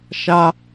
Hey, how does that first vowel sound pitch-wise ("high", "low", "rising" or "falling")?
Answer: high